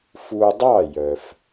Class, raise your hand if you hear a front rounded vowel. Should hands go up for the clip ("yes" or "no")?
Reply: yes